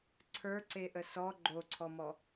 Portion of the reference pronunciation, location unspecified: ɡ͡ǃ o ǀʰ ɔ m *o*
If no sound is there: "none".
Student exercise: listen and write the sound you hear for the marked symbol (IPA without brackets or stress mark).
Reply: ɔ